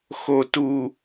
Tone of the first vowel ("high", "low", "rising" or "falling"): low